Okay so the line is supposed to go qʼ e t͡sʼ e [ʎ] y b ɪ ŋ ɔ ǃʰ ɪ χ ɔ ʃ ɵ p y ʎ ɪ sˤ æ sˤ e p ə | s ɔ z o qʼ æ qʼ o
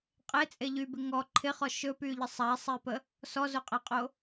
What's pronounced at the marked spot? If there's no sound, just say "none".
ʎ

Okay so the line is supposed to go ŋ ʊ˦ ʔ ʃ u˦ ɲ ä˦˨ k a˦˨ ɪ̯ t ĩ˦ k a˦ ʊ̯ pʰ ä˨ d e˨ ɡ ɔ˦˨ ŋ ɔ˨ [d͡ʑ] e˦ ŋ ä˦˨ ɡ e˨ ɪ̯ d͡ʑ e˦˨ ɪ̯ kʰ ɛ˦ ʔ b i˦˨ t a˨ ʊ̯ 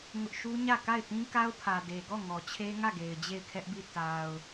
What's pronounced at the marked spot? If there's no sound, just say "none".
t͡ɕʰ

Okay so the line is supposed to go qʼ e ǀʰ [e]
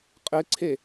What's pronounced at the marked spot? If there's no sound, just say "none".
e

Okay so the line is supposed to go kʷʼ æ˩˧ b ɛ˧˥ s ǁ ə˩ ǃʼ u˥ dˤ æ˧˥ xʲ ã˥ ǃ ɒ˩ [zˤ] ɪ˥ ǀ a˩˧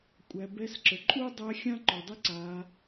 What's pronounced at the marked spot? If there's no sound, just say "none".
dˤ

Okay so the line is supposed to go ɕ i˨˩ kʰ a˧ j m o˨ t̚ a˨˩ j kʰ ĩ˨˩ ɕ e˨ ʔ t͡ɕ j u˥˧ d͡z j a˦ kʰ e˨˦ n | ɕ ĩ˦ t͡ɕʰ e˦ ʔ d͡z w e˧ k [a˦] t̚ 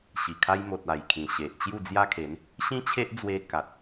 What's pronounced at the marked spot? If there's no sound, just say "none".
a˨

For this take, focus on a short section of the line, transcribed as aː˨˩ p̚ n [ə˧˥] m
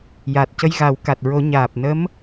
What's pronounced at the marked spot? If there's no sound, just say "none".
ə˧˥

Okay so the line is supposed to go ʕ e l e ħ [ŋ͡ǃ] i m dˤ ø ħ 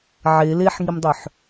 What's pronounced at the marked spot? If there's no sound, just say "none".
ŋ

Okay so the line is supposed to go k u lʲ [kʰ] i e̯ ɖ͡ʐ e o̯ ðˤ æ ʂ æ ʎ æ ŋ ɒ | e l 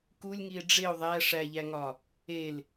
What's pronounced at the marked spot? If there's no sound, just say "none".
ŋ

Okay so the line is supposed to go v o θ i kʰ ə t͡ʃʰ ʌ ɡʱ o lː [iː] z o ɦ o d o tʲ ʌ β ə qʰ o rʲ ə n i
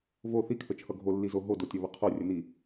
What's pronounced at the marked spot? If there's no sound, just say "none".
i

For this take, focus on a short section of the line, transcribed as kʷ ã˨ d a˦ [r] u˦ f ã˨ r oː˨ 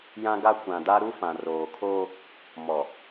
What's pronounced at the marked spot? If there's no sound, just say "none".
ɾ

